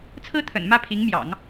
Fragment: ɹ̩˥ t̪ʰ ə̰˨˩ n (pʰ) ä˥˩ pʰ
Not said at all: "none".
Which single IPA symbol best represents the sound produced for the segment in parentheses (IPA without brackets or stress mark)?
m